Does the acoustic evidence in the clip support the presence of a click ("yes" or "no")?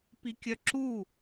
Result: yes